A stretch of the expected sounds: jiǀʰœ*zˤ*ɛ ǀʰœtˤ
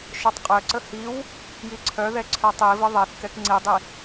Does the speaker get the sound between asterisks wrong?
yes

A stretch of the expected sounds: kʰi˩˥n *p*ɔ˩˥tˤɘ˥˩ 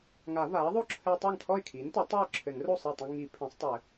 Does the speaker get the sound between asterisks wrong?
yes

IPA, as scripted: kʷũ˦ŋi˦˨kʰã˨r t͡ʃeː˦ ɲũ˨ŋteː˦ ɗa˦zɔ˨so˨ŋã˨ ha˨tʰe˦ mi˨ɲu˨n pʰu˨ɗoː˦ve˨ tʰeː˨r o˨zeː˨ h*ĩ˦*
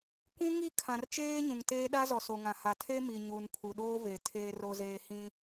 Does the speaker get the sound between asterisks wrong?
no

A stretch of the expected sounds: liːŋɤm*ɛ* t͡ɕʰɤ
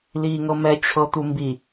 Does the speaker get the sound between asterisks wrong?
no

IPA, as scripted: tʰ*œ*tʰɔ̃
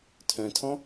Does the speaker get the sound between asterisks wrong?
yes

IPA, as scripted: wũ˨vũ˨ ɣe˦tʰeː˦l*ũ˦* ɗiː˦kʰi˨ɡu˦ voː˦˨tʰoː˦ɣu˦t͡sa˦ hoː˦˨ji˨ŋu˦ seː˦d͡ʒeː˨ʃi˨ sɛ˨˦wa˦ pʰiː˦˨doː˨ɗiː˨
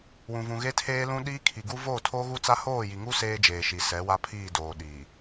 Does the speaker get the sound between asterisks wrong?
no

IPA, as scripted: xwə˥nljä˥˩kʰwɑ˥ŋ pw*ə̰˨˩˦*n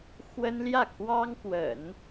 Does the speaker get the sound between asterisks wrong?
no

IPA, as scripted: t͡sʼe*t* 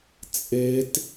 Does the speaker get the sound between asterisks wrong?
no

